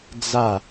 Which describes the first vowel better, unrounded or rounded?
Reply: unrounded